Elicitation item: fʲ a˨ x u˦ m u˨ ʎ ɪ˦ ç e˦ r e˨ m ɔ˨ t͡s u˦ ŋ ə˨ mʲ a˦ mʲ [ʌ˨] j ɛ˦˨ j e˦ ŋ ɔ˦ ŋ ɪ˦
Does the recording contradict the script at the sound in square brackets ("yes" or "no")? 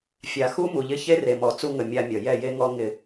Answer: no